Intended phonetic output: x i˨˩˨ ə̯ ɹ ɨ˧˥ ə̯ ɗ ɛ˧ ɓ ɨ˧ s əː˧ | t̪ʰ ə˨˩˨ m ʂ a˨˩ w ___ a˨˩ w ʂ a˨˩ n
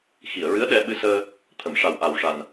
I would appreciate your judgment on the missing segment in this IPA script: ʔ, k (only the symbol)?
ʔ